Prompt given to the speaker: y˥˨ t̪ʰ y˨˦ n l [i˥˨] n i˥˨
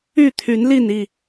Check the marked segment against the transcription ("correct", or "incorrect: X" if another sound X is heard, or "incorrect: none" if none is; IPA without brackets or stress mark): correct